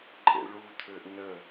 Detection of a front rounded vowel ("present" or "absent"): present